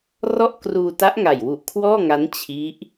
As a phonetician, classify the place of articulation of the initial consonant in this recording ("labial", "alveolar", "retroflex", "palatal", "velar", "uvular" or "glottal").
alveolar